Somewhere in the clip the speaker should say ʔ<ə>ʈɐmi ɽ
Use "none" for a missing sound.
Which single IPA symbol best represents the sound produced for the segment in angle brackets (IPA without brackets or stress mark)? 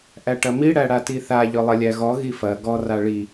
æ